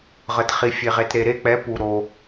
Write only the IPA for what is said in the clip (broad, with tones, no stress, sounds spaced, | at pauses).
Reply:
ʁ ə˩ t χ i˩ fʲ e˩ ʁ e˩ t ɾ e˩ ɾ e˦˨ k͡p ɛ˩˥ p u˩ ɾ o˩